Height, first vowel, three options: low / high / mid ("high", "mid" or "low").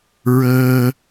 mid